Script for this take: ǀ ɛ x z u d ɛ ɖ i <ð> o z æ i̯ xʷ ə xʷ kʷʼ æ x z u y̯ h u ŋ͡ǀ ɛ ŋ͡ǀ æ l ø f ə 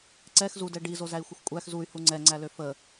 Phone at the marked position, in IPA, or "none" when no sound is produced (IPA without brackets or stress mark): z